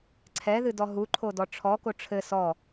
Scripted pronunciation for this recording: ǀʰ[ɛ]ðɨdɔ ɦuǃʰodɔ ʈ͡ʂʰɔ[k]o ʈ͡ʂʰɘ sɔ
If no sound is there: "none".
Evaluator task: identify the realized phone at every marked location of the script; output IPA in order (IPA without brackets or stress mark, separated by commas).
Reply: ɛ, k